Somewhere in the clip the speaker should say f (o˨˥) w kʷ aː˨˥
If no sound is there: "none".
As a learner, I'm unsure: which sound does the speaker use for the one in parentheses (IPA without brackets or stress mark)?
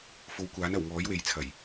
o˨˥